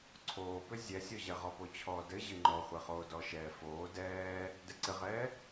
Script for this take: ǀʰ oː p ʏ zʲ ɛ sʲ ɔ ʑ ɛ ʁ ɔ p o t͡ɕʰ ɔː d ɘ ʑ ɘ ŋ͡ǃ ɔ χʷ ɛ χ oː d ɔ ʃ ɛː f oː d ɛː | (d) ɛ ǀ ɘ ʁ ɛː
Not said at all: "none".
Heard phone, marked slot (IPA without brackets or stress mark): d